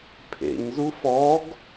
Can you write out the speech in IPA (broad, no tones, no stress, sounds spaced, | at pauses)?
pʰ ḛ ɲ z u f ɔ ɡ